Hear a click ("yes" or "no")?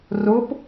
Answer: no